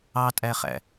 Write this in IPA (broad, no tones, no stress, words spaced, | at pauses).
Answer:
ɑtʼæχæ̰